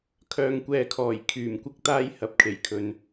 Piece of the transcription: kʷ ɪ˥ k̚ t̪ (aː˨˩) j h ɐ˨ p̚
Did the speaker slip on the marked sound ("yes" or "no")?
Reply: yes